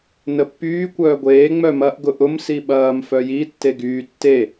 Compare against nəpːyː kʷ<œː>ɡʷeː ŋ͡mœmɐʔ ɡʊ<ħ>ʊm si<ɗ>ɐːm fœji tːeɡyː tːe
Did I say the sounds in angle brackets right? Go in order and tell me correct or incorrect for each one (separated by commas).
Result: correct, incorrect, incorrect